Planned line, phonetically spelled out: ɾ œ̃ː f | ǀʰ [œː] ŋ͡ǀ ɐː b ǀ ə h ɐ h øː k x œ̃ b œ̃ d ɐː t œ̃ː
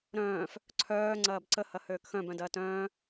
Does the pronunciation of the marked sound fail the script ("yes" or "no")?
no